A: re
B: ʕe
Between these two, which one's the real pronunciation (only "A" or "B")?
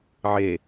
B